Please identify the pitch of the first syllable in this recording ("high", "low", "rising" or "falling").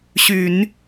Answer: low